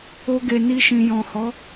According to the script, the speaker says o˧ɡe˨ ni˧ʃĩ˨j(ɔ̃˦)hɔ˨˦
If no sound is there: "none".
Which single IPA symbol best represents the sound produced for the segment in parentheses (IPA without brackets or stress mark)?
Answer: ɔ̃˨